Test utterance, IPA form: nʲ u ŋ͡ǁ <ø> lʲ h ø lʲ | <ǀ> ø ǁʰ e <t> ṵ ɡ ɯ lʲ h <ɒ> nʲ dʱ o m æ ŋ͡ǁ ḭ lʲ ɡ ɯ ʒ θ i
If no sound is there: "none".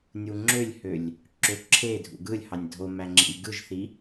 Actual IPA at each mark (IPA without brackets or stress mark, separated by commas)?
ø, ǁ, dʱ, ɑ